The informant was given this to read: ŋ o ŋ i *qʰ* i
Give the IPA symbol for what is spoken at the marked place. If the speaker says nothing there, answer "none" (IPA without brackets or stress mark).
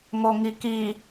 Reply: k